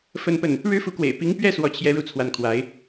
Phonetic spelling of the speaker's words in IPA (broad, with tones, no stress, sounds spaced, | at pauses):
f ə˥˧ n p ə˥˩ n | ɻ ɻ̩˥ f u˧˥ k w ḛ˨˩ ɪ̯ p i˧˥ ŋ p ɥ ɛ˥˧ s w ɔ˥˩ t͡ɕʰ j ɛ˥ ɻ u˥˧ t͡sʰ w a˥˩ n kʰ w a˧˥ ɪ̯